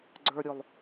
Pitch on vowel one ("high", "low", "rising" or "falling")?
high